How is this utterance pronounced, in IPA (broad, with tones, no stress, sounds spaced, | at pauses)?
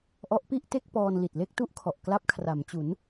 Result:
ʔ ɔ˦˥ ʔ p i˥˩ ʔ t e˥˩ k̚ p ɔː˧ n l i˨˩ t̚ l e˥˩ k̚ t u˥˩ ʔ kʰ ɔ˨˩ ʔ k l a˦˥ p̚ kʰ r a˩˦ m t͡ɕ u˩˦ n